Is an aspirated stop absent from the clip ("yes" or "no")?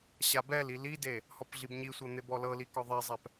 yes